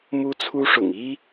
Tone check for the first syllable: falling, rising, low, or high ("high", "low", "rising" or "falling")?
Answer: high